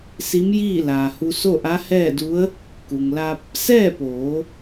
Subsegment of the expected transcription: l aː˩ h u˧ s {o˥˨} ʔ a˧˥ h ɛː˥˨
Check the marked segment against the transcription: correct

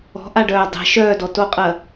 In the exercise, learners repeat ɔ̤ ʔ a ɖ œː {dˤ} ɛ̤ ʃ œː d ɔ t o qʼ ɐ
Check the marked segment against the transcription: correct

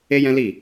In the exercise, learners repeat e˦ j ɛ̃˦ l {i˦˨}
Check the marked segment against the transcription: correct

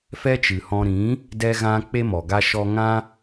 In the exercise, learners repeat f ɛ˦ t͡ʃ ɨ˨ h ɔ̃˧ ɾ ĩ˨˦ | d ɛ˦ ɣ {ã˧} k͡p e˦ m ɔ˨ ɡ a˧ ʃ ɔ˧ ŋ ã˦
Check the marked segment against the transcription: incorrect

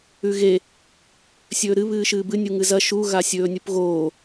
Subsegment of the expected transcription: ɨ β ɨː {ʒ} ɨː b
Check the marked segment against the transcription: incorrect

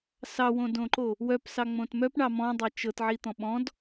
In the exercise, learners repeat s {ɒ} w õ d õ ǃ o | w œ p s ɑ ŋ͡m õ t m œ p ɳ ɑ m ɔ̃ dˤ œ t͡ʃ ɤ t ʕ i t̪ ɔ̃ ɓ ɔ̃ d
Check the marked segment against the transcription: incorrect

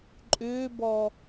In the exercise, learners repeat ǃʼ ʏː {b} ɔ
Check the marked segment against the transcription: correct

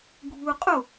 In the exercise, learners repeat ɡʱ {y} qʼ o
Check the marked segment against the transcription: incorrect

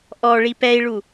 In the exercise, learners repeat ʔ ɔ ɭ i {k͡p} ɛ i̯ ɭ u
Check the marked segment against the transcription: incorrect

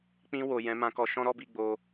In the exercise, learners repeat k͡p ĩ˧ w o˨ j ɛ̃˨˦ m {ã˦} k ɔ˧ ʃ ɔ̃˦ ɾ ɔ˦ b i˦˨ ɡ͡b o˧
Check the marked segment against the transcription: incorrect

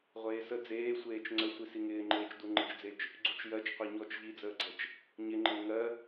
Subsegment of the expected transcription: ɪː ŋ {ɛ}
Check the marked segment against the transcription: incorrect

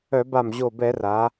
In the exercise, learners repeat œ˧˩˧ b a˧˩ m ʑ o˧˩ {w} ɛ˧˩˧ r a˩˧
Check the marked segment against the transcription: incorrect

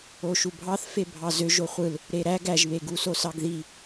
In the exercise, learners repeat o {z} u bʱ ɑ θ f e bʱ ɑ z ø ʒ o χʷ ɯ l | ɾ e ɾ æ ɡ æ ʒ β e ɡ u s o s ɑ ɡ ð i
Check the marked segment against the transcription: incorrect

